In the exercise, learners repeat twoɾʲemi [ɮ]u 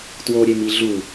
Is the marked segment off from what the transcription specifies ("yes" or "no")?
no